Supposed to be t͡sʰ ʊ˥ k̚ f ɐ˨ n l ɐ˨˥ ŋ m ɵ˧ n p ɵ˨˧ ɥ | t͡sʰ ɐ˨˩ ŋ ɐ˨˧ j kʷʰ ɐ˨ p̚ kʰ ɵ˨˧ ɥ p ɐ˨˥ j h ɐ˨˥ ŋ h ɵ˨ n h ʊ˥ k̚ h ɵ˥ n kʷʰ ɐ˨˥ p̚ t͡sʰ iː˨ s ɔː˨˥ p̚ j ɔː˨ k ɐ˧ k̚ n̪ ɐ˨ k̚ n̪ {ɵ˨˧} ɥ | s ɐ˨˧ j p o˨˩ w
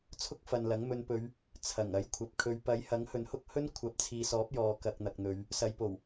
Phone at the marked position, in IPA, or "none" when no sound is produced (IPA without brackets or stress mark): ɵ˨˧